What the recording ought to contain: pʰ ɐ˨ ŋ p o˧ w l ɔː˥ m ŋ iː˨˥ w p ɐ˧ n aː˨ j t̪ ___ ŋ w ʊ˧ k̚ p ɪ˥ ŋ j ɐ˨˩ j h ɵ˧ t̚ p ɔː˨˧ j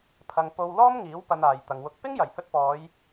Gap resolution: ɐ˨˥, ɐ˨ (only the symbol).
ɐ˨